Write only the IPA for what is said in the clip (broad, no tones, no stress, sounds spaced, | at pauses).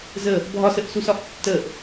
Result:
z ə | bʱ ɒ s ə ʔ s u s ɒ ʔ tː ə ʔ